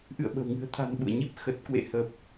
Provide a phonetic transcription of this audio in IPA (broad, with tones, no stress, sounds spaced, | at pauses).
ʔ ɨ̰˧˨ ə̯ ɓ ə̤˨˩ w ŋ ɨ̤˨˩ ə̯ t̪ʰ a̤˨˩ n ɓ ṵ˧˨ ə̯ ɲ i˦˥ p̚ x ə˨˩ t̚ k w ḛ˧˨ h ə˨˩ p̚